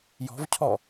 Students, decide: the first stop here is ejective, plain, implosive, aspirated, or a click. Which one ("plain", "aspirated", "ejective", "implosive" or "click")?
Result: aspirated